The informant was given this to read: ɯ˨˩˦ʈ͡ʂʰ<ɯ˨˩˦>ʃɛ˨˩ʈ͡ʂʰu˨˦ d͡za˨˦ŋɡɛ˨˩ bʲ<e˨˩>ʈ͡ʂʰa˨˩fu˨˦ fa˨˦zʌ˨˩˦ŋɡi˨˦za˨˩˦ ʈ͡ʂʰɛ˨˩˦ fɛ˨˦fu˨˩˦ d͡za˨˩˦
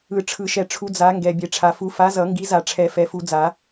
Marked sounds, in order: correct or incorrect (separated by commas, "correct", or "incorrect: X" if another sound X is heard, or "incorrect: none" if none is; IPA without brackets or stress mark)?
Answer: correct, correct